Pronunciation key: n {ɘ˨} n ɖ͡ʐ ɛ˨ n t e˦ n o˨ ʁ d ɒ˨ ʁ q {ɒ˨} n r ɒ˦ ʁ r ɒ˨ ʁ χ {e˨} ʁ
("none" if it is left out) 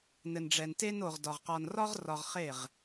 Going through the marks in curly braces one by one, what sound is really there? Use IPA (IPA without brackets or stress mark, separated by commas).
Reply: ɘ˨, ɒ˨, e˦˨